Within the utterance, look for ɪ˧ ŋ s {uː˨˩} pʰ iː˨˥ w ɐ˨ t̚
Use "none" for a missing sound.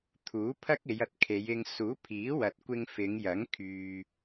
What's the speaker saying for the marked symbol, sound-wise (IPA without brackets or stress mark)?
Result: uː˨˥